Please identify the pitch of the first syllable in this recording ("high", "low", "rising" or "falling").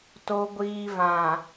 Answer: low